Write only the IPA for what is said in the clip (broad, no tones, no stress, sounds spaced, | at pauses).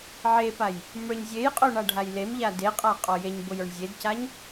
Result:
ʕ e p a j | m ə˞ ɲ zʲ e j qʼ o ɳ a ɖʱ a j l e m ʎ a d e qʼ a qʼ ɔ j e ɲ b o j ə˞ ɳ zʲ e d c a ɲ